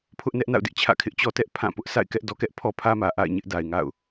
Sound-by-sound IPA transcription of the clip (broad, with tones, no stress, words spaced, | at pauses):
pʰʊ˦ʔ nɛ˦ʔna̰˦˨ʊ̯dɪ˦ʔ t͡ɕʰä̰˦˨kʰɪ˦ʔt͡ɕɔ˦tɛ˦ʔ pʰã˦˨ pʊ˦ʔsʰa̰˦˨ɪ̯ kɛ˦ʔ dɔ˦kɛ˦ʔ pʰɔ˦ pʰä˦mä˨ ʔa̰˦˨ɪ̯ɲɪ˦ʔ da˨ɪ̯ŋa̰˦˨ʊ̯